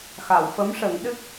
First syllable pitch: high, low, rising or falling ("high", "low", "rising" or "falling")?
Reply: low